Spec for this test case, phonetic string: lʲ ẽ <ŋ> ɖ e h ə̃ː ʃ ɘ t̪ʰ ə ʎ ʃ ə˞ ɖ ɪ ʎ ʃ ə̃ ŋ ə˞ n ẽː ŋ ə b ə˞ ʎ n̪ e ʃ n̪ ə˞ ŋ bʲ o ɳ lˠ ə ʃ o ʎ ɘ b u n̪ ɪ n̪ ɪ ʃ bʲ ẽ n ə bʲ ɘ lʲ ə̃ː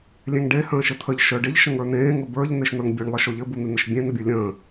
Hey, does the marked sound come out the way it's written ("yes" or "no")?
yes